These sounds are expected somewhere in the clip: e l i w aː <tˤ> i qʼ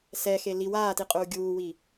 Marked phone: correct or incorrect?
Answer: incorrect